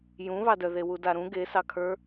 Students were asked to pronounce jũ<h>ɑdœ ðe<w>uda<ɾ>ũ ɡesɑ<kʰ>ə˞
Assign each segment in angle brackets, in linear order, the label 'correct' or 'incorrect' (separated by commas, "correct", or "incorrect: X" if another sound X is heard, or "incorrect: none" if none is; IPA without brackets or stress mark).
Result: incorrect: β, correct, correct, correct